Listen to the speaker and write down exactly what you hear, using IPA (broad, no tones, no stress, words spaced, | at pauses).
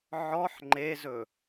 ʕɔħ ŋ͡ǃezɵ